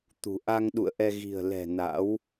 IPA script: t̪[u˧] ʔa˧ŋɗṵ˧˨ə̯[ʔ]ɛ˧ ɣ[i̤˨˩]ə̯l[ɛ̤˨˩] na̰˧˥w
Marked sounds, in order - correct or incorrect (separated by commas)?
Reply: incorrect, correct, correct, correct